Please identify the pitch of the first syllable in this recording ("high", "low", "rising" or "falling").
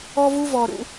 high